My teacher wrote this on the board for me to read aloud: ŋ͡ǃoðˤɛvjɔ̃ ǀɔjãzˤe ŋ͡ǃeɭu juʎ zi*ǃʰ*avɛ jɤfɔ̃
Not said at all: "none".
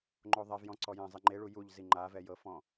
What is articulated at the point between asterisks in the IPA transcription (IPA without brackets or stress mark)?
ŋ͡ǃ